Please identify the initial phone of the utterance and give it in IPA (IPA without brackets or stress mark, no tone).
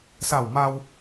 s